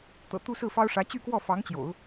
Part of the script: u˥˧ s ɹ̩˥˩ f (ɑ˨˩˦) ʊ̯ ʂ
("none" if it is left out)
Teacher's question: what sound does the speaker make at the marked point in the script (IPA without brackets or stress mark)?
ɑ˥